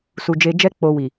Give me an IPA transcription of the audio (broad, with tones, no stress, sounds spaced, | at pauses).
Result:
s u˨ d͡ʒ e˧ d͡ʒ ɛ˦ k͡p o˧ w i˨